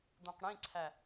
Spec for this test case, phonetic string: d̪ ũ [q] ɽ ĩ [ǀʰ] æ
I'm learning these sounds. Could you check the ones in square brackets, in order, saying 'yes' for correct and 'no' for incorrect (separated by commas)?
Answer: yes, yes